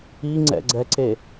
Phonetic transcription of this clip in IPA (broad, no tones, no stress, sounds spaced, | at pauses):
i ŋ͡ǀ ɛ̰ ɡ͡ǀ ɛ ǀ e